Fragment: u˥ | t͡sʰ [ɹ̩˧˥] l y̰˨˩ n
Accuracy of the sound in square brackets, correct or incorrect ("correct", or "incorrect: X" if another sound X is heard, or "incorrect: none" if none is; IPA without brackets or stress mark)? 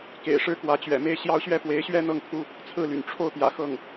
incorrect: ɹ̩˥˩